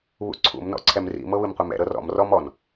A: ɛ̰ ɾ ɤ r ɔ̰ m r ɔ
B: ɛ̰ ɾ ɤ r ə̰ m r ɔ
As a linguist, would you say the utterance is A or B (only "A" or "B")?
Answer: A